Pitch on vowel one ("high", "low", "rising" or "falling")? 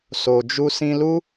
low